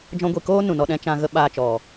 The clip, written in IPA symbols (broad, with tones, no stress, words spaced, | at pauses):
d͡ʒɔ̃˧ɡʷi˨koː˦ nũ˨nɔ˧ɗɛ̃˦ t͡ʃã˧ɣə˦ ɓaː˧t͡ʃɔ˨